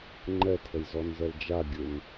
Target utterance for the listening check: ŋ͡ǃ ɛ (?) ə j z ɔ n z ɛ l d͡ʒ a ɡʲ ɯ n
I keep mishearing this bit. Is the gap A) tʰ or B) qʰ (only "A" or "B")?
A